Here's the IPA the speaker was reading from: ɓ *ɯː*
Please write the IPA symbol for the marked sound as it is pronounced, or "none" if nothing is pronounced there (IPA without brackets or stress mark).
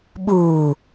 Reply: uː